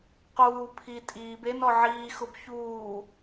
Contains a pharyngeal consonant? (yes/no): yes